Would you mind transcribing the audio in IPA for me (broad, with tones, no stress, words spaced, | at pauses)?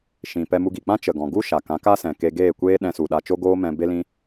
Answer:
ʃĩ˨ pɛ˧mu˧ɡi˨k͡pã˦ t͡ʃə˨ɡɔ̃˨ ɡu˦ʃa˨kã˨˦ ka˦sɛ̃˨ ke˧ɡeː˦˨kʷeː˦ ɗɛ̃˧su˨ɗa˧ t͡ʃo˦ɡoː˦mɛ̃˧ be˦lĩ˦